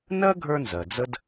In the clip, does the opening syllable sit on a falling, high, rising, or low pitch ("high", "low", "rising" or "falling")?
high